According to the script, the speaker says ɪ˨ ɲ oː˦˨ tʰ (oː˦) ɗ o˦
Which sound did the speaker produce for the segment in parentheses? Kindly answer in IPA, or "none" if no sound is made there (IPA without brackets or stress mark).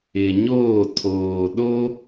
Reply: oː˨